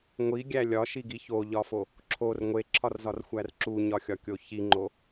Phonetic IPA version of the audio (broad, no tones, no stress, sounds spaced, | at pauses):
ŋʷ i ɡʲ æ lʲ ɒ ʃ i ɡ i ç o ʎ ɒ f o | ǁʰ o r ŋʷ e ǁʰ ɒ r z ɒ r xʷ æ r ǁ u ɲ ɒ xʲ ɒ kʲ o ç i ŋ͡ǃ o